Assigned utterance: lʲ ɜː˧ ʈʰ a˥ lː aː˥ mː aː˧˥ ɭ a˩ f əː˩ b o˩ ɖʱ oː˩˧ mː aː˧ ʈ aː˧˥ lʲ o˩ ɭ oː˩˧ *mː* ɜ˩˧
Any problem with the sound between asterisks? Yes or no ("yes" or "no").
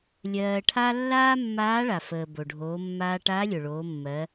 no